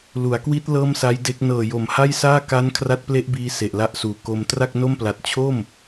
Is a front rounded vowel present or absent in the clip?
absent